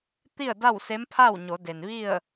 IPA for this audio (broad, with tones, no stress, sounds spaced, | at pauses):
t̪ i˥˨ ə̯ d a˥˨ w s e˧˥ m pʰ a˥˨ w ɲ o˩˧ d e˩ n ʋ i˥˨ ə̯